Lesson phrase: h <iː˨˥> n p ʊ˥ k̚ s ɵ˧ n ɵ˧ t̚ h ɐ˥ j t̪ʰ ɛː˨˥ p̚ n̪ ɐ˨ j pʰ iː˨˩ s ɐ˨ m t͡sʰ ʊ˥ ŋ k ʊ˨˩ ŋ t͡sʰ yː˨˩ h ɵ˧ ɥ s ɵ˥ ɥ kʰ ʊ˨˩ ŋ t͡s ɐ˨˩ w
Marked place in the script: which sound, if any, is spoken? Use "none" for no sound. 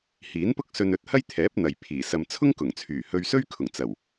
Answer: iː˨˥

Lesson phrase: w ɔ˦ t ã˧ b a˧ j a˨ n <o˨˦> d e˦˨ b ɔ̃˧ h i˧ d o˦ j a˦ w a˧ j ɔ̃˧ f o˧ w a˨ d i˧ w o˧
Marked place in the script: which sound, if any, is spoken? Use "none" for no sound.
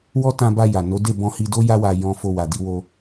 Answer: o˨˦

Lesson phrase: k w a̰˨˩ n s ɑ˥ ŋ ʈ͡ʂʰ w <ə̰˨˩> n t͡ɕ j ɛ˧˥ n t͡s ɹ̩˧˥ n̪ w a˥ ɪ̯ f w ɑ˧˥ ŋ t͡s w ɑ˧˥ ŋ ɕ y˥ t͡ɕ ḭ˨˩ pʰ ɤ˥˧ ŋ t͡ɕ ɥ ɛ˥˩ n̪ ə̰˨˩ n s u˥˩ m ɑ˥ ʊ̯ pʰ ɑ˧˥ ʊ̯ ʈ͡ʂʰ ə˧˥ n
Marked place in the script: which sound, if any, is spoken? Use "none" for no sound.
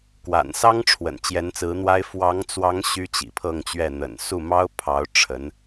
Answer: ə̰˨˩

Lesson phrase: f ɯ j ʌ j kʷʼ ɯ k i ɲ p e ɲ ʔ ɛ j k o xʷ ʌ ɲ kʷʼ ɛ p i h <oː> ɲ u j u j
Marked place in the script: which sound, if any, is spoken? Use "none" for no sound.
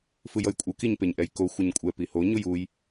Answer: o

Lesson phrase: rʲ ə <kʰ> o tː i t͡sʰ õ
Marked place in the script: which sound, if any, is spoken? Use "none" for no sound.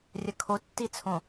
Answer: kʰ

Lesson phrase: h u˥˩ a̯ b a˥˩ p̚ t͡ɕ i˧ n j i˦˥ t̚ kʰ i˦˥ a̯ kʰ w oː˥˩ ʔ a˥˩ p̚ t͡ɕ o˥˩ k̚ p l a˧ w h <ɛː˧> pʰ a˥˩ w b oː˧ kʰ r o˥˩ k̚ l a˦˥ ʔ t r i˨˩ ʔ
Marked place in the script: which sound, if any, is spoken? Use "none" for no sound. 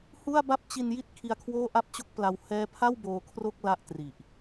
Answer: ɛː˦˥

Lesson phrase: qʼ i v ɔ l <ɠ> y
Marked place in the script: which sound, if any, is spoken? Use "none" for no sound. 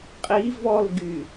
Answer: ɡ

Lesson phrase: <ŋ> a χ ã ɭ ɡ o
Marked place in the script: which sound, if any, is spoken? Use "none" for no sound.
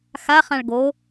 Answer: x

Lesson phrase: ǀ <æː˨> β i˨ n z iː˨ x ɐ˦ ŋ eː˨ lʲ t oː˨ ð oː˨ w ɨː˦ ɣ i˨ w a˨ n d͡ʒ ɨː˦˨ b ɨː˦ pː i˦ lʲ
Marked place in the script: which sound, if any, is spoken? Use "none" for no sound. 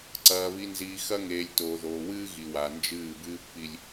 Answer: ɐː˨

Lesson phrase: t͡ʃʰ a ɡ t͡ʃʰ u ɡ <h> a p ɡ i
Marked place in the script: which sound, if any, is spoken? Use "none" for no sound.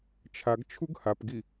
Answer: h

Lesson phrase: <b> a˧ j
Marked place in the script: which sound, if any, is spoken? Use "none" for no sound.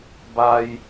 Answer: b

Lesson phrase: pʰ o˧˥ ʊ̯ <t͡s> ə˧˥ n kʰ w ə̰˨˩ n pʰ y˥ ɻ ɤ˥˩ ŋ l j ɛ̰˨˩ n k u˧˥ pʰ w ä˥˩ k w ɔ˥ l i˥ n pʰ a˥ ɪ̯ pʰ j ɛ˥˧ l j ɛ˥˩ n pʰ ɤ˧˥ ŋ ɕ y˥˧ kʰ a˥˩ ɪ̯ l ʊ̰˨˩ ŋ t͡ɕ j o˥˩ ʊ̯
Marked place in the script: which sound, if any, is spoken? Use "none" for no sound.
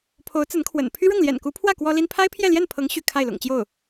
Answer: t͡s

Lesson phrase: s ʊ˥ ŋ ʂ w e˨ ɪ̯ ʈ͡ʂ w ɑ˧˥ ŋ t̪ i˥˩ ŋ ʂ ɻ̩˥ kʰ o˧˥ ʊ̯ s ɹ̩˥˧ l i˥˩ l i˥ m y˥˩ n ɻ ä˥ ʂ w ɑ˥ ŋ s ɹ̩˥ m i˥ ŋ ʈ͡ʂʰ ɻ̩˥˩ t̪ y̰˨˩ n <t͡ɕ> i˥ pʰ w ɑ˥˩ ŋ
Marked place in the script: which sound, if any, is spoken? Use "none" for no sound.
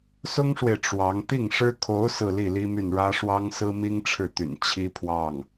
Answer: t͡ɕʰ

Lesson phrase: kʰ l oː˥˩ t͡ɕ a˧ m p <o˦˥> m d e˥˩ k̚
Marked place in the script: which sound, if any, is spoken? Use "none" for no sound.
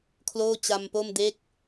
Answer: o˥˩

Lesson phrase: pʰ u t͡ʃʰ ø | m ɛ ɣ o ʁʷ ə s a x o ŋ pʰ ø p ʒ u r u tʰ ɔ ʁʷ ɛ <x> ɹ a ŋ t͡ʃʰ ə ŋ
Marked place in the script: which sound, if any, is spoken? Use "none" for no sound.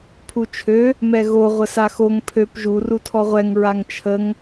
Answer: ŋ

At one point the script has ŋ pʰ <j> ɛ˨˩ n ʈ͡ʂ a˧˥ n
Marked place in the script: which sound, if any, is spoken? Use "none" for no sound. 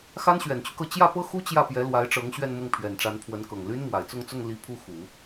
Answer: ɥ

